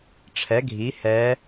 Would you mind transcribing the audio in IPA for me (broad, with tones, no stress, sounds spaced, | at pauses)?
ʈ͡ʂʰ ɛ˩˥ ɡʱ i˩˥ h ɛ˧˥